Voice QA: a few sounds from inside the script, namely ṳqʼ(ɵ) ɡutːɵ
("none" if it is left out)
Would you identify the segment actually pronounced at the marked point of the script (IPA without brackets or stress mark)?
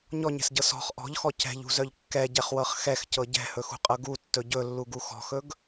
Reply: ɤ